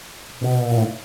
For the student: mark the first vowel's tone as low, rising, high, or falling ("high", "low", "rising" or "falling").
low